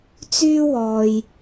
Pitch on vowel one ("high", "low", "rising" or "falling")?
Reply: high